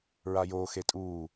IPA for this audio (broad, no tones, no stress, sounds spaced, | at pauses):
ɹ a j oː x e tʼ uː